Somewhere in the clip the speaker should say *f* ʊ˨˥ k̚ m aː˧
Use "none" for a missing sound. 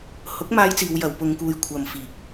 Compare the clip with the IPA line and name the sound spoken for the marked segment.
h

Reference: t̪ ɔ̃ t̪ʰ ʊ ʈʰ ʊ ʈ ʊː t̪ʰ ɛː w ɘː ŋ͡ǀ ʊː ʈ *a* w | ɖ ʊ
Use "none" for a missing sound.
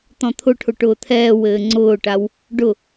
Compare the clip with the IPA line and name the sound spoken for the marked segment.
a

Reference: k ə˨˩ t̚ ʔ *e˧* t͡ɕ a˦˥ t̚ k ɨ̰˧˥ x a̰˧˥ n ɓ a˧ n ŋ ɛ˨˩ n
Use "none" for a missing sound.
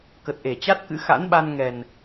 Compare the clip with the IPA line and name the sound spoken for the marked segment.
e˧˩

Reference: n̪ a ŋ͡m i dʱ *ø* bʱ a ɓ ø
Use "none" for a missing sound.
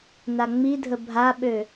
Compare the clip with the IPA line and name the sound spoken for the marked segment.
ə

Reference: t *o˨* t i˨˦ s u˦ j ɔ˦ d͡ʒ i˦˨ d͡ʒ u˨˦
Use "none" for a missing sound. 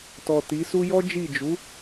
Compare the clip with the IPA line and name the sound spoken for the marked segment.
ɔ˨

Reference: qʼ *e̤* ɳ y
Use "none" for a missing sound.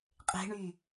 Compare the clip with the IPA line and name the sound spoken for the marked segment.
e̤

